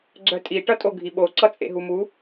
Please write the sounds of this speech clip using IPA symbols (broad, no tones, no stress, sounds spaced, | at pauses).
ɡ͡ǀ œ tʼ i ʈ ʌ tʼ o ɡʱ i ɓ o ǀ ʌ t͡sʼ ḛ ɦ u m u